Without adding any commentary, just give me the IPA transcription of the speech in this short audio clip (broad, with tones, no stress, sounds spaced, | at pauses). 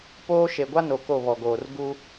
p oː˦ ʃ e˨ ɡʷ a˦ n o˨ k o˦˨ β ɔ˨ ɡ oː˨ r ɡ u˦